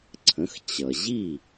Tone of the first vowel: rising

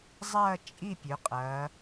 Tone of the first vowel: falling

